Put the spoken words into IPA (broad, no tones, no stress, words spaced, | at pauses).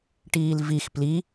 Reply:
ʈiːlvix pli